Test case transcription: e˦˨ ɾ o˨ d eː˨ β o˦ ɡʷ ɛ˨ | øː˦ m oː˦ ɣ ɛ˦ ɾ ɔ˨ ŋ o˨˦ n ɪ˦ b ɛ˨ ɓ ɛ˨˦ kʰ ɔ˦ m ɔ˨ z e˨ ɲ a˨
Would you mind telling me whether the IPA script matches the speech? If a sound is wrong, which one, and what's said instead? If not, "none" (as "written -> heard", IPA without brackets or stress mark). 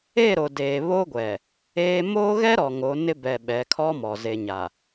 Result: øː˦ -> eː˦